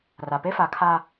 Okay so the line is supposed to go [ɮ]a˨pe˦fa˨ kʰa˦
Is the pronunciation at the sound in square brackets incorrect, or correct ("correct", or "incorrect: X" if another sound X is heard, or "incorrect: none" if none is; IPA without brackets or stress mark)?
incorrect: r